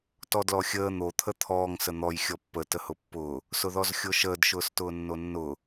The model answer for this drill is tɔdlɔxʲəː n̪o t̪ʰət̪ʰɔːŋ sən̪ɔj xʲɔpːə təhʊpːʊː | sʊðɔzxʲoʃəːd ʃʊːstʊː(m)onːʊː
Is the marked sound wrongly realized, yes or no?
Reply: yes